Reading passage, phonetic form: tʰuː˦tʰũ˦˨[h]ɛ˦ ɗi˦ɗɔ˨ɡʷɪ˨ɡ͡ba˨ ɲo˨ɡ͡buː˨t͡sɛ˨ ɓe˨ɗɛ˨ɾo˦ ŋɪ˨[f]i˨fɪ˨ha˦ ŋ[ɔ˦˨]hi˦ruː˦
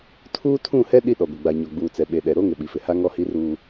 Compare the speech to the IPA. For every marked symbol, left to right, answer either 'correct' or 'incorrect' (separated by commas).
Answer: correct, incorrect, correct